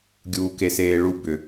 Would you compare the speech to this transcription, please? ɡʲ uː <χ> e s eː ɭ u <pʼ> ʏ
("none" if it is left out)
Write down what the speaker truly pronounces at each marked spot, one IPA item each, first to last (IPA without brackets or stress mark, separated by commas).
k, b